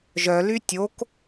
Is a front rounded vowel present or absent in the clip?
present